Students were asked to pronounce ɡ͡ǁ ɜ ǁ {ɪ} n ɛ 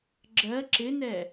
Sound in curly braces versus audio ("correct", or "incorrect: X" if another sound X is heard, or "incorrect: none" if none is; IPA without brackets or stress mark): correct